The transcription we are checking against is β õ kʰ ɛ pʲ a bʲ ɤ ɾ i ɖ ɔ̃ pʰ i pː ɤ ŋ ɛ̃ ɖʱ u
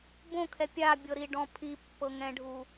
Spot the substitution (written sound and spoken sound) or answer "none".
β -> b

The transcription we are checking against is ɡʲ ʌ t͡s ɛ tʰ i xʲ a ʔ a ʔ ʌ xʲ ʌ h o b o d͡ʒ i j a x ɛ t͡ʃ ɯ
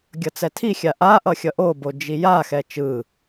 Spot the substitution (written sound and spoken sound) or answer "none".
h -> ʔ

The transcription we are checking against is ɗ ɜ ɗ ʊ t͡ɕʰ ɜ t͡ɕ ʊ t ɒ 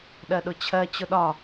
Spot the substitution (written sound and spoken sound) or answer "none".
t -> ɗ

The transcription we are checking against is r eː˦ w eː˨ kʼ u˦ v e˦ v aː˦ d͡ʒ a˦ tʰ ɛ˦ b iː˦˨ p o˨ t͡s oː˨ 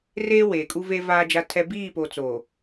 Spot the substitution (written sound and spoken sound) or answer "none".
none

